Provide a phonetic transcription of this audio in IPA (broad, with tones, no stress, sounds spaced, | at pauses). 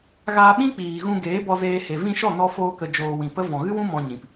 ɣ aː˧ ɓ ĩ˦ k͡p iː˨ ɣ ũ˧ ɡ eː˨˦ b ɔ˧ z eː˧ h e˨ v ĩ˧ ʃ ɔ˦˨ n ɔ˧ f oː˧ k ə˨ d͡ʒ oː˨ w ĩ˨ p ə˦ v ɔ̃˨ ɣ ɨ˦ w ũ˦ m ɔ̃˧ ɲ ĩ˨ p